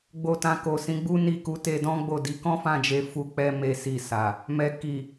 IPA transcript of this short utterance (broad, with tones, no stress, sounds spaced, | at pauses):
ɡ͡b o˧ t ã˧ k o˨ s ĩ˨˦ ɡ͡b u˦ n i˦˨ k u˧ t e˧ d ɔ̃˦ ɡ͡b o˦˨ d i˨˦ k ɔ̃˦ f ã˦˨ d͡ʒ e˧ f u˦ k͡p ɛ˦ m e˦ s i˦˨ s a˨ | m ɛ˨ k i˨